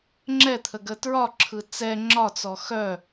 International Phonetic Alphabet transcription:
ŋ͡ǁ ɛ t̪ʰ ə ɡ ə t ɹ ɒ ǁʰ ɯ t͡s ɛ ŋ͡ǁ ɒ t͡s ɔ x œ

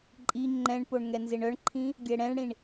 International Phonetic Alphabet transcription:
ǃʼ i ŋ͡ǃ ɛ̃ ɳ p o ɳ ŋ ɛ n z e ɳ œ ɳ ǃʰ ĩ | ɡʲ ɛ ɽ ɛ̃ ɳ ɽ ĩ ɳ

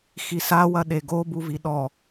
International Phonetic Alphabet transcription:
x i s a w ɐ ɗ e ɡ o b u v i ɗ ɔ

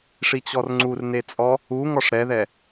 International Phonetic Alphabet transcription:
ʂ i t͡ɕ ɔ r ŋ͡ǀ u r n e t͡sʼ ɔ | u ŋ ɔ ʂ ɾ ɛ ð ɛ

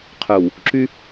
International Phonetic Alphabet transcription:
qʰ œ˨ w | ǁ y˦

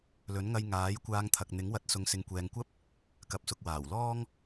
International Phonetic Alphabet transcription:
l ɵ˨˥ n ŋ ɐ˧ j ŋ aː˨˥ j kʷ aː˧ ŋ t̪ʰ ɐ˨ k̚ n̪ ɪ˨˥ ŋ w ɐ˨˥ t̚ s ʊ˨ ŋ s ɪ˨ ŋ kʷ ɛː˨ ŋ kʷ ɐ˥ p̚ | k ɐ˨ p̚ s ʊ˨ k̚ w aː˨˩ w l ɔː˥ ŋ

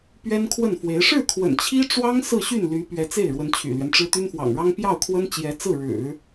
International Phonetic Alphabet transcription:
p ɥ ɛ˥ n kʰ w ə˥˩ n f w e˧˥ ɪ̯ ʂ ɻ̩˥˩ kʰ w ə̰˨˩ n t͡ɕʰ i˥ ʈ͡ʂ w ɑ˥ ŋ s ɹ̩˥˧ ɕ y˥˩ n l y˧˥ p ɥ ɛ˧˥ t͡s e˥˩ ɪ̯ ɻ w ə˧˥ n t͡ɕʰ y̰˨˩ l ɥ ɛ˦ n ʈ͡ʂ ɻ̩˥ t̪ y˥ n f w ɑ̰˨˩ ŋ ɻ ɑ˥ ŋ p j ɑ˥˩ ʊ̯ kʰ w ə˥ n t͡ɕ j ɛ˧˥ t͡s ɹ̩˥˩ ɻ ɻ̩˨˩˦

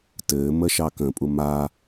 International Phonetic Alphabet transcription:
t ɘː m ə ʃ ɑ k ə̃ pʼ u m a

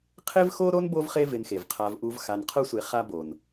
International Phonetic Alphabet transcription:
qʰ e˦ v x o˦ ɾ o˥ n b o˦ v χ e˦ v ɪ˨ n x e˩ v qʰ a˨ v ʔ u˨ v x a˨ n qʰ ʊ˦ sʷ e˨ χ a˦ b o˩ n

